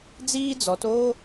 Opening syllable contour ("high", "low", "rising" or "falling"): high